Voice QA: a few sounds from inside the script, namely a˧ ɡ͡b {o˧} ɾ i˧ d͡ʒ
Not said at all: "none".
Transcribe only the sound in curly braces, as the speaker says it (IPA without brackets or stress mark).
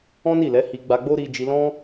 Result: o˦